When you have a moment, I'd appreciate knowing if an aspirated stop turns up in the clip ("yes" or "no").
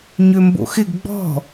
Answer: no